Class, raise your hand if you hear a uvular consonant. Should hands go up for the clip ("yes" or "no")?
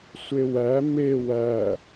no